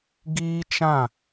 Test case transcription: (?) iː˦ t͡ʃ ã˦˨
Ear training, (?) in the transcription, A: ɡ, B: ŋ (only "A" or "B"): A